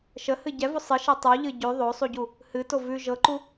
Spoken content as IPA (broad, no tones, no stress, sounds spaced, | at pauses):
ʃ ə h ɨ ɟ ɛ v o sˤ ɨ ʃ ɛ tˤ u ʎ ɨ ɟ ʉ ðˤ o sˤ u ɟ u | h ɨ t o v ʉ ʒ ɤ ǃ u